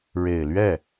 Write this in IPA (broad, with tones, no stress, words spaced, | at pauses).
ɻe˨˩ɪ̯lɥɛ˥˩